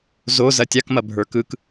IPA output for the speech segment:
z o z ɐ tʲ a k m ɐ bʱ ə˞ k ɯ k

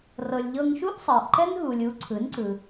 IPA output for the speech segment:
r ɤ˩ lʲ ʎ ɤ˧ ŋ ʃ u˥ ʔ sˤ ɤ˩ ʔ ǃ ɛ˥ n ɦ u˩ lʲ u˩˥ ǀʰ ɯ˩˥ n ǀ ɯ˩

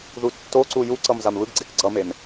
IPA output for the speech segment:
ð u tː o ǀ u j u ǀ ʌ m z a m β ɯ ɡ ɡ͡ǀ e k ɡ͡ǀ ʌ m e m

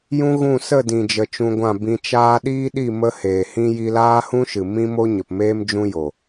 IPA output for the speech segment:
j ũ˦ ɣ ũ˦˨ s ə˦˨ d ĩ˨ d͡ʒ ə˨ t͡ʃ ũ˧ ɡʷ ã˦˨ b ĩ˧ t͡ʃ aː˦ ɗ iː˦ ɗ i˦˨ m ə˦ h eː˨ h ĩ˦ j i˧ l aː˦ h ũ˦ ʃ ɨ˨ m ĩ˦ m o˦ ɲ ə˨ p m eː˦ m d͡ʒ ũ˦ j o˨

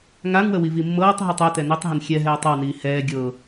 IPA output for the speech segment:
ŋ a ŋ w ə w i v i mː ɤː tˤ ɦ e tˤ ɛ t ɛ n i tˤ ɦ ə n xʲ ɛ ɦ ɛː tˤ ɤ w n iː h ɛː ɡʲ ɤ

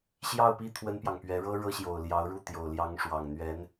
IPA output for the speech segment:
ɕ j ɑ˥˧ ʊ̯ p i˥˩ t̪ʰ w ə˥ n p j ɑ˨ ŋ p ɥ ɛ˧˥ ɻ ɤ˥ ɻ ɤ˥ ɕ j o˨˩ ʊ̯ l j ɑ˧˥ ʊ̯ ɻ u˥˩ t̪ j o˨˩ ʊ̯ l j ɑ˧˥ ŋ ʂ w ɑ˨˩ ŋ n̪ ɥ ɛ˧˥ n

